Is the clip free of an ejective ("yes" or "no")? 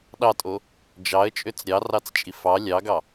no